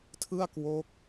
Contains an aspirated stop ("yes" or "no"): yes